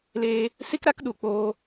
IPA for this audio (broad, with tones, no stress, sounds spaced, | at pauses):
l eː˧ | s i˦ k ɾ a˦ k ɗ u˨ k͡p oː˧